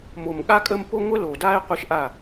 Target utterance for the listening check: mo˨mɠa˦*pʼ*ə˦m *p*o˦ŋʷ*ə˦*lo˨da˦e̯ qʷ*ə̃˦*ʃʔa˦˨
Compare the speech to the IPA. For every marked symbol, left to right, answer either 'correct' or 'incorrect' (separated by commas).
incorrect, correct, correct, incorrect